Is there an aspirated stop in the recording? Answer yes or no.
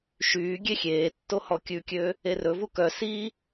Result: no